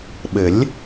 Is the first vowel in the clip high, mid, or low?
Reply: mid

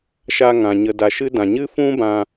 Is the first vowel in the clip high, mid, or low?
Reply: low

